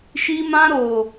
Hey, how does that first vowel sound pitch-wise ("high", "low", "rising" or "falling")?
high